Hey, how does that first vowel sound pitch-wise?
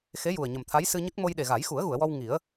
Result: rising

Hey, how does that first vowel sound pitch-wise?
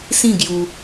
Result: falling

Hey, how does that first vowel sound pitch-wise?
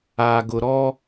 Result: low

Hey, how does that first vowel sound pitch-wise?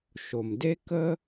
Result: low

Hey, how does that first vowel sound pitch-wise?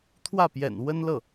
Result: falling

